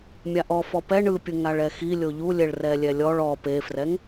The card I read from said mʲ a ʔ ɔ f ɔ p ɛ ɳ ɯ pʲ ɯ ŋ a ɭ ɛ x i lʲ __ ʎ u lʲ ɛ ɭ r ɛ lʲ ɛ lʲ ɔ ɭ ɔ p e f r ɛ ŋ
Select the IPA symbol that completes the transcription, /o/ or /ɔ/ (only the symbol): o